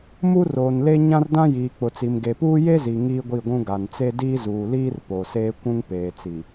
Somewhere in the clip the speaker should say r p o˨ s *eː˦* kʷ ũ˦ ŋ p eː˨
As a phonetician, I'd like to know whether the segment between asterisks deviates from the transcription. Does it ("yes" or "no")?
no